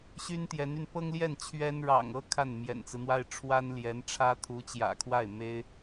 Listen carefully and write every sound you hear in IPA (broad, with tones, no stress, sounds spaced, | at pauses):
ɕ y˥ n t̪ j ɛ˧˥ n y˧ n p ɤ˥ ŋ l j ɛ˥˩ n t͡ɕʰ ɥ ɛ˥ n ɻ ɑ̰˨˩ ŋ ɤ˥ kʰ a˥˩ n m j ɛ̰˨˩ n t͡s ɹ̩˦ n̪ w a˥ ɪ̯ ʈ͡ʂʰ w a˥ n l j ɛ˧˥ n ʈ͡ʂʰ ä˥ t̪ʰ u˧˥ t͡ɕ j ä̰˨˩ kʰ w a˥˩ ɪ̯ m e˥ ɪ̯